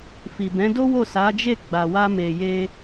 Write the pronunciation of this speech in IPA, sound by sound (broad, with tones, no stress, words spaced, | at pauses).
fi˨bɛ̃˨˦do˦ wo˦˨sa˨˦d͡ʒe˦˨ ɡ͡ba˨wa˧me˨je˧